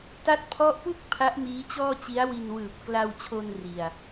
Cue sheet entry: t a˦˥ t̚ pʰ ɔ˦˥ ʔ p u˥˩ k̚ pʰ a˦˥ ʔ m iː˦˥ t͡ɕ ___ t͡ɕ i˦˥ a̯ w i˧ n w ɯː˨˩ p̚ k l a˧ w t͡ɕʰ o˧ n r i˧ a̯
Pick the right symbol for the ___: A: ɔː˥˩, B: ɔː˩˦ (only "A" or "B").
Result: A